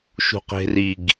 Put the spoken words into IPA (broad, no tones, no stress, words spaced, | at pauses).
ʃṳqe̤riɡ